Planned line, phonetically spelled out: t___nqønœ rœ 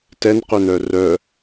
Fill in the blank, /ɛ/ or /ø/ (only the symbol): ɛ